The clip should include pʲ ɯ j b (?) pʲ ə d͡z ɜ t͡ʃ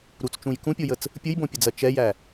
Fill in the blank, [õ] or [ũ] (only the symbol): õ